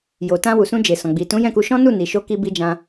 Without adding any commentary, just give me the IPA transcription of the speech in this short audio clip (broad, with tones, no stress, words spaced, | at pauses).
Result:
jo˨tã˧ wu˨sũ˧d͡ʒe˨ sɔ̃˨ɡ͡bi˨ tũ˨˦jɛ̃˦˨ku˧ʃɔ̃˦ nu˦˨ni˨ ʃo˧ki˧bi˧ d͡ʒã˧